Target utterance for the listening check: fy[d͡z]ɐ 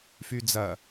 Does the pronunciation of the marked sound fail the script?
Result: no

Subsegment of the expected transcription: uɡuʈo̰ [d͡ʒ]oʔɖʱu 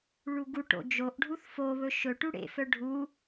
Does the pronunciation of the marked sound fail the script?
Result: no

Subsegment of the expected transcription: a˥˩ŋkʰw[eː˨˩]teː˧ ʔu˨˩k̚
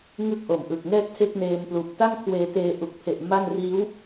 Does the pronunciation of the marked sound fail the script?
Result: yes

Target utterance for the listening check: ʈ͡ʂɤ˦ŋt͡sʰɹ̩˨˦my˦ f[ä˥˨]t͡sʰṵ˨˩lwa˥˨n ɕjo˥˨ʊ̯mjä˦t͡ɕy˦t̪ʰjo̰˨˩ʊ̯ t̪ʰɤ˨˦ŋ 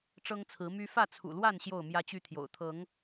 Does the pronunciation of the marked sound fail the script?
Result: no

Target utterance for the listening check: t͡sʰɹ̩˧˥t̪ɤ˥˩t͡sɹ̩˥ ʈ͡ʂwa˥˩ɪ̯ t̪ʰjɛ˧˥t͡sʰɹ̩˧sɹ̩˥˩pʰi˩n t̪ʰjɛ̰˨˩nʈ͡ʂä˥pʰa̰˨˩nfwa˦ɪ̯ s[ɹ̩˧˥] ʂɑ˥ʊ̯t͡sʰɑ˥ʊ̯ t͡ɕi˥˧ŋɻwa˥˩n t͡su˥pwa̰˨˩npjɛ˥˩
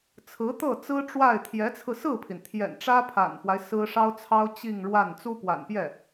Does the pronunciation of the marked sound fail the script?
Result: yes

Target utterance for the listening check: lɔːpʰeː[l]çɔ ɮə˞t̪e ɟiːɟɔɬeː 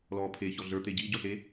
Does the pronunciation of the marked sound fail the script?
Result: yes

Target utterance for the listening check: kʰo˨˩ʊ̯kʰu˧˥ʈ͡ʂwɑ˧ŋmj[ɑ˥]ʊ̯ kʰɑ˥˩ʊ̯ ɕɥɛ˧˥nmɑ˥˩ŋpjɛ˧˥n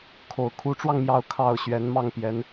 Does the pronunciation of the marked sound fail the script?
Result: yes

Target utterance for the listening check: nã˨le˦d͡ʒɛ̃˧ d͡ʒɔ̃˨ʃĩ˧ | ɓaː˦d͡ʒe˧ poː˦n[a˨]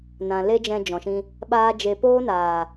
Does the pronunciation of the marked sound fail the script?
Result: yes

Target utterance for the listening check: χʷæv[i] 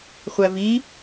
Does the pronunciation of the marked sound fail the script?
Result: no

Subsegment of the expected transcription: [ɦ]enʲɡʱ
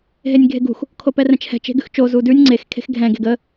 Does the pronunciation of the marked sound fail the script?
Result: no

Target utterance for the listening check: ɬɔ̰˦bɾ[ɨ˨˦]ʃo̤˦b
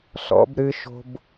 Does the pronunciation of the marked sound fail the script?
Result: yes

